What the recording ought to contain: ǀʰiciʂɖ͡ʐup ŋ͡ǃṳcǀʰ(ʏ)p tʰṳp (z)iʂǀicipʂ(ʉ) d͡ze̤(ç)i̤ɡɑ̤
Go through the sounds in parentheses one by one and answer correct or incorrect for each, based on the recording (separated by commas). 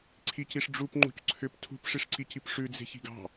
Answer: correct, incorrect, correct, correct